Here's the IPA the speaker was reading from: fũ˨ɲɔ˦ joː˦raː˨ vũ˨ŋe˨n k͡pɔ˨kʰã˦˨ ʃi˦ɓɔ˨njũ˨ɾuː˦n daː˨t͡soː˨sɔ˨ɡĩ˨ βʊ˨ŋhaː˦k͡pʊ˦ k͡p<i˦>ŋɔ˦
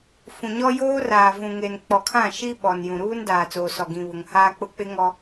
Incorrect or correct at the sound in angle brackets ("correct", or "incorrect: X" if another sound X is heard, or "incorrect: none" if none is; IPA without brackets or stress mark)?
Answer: incorrect: ɪ˦